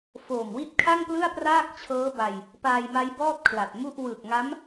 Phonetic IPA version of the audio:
foː˨˩mwi˥˩t̚ kʰa˥˩ŋplɯ˥˩a̯praː˥˩k̚ t͡ɕʰɤː˦˥ba˧j | paː˧jma˦˥jbɔː˥˩t̚ kʰla˨˩t̚mu˥˩ʔ wɯ˨˩k̚ ŋa˦˥m

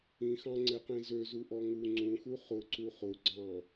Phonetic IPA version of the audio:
ĩxɑ̃ŋ͡ǀeqĩ zøzuʔɔ ŋu ŋ͡ǀũxu χʊǀu χʊɡ͡ǀɑ̃

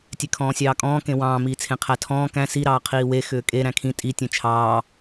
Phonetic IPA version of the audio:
tʲekʰɔ̃ːsʲɑːkʼɔ̃ː kẽwɑ̃ː miːt͡sʰẽqʰætʰɔ̃ː kæ̃ si ɾɑːqʰiːwe xʏːkʼe ɾæ̃kʰĩ tʼi tʲẽt͡ʃʰɑː

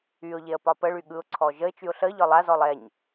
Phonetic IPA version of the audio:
yʊ̯ʎeə̯ pɒpəɭy ɠɯʊ̯ǀʰɔ ʒəɪ̯t͡ʃyʊ̯ ɬə ʎɒlˠazɔlˠ ɛɲ

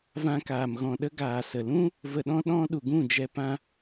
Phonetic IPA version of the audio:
vã˧kaː˨m ɣɔ̃˨ɗə˧ ɡaː˨sə˨lũ˦ | və˧ɗɔ̃˦ ɗɔ̃˦ ɗu˨ɡũ˦˨d͡ʒɛ˧ pã˧

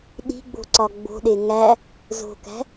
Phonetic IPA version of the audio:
ɗi̤ɡ͡bo̤ ǀɒɡ͡bo̤ɗe ŋæ | zo̤kæ̤

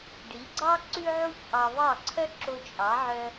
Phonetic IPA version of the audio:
ɖi˩˥ɡ͡ǀɑ˥ ǀʉ˥ʕu˥çʔɑ˧ βɑ˥˩ǀʰœ˥ ǁo˧t͡ʃʼɑ˩˥ʕœ˧

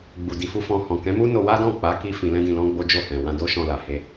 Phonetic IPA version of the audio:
ɡ͡bu˨ di˨fu˧ fɔ̃˧ hɔ̃˨kɛ̃˨˦mu˦no˧ wa˦dɔ̃˦˨k͡pa˨˦ki˧ fĩ˧lɛ̃˦dĩ˧lɔ̃˦ ɡ͡bo˦d͡ʒo˦˨hɛ̃˨ wã˧do˦ʃɔ̃˧la˨ he˧

